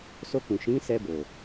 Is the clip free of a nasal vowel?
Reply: no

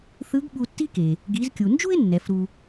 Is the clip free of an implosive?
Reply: no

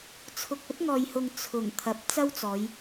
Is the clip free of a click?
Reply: yes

